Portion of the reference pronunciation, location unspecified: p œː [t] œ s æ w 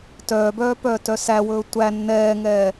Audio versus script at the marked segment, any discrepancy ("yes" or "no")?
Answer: no